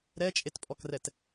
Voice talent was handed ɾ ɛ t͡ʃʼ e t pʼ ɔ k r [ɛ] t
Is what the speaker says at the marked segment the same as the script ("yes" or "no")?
yes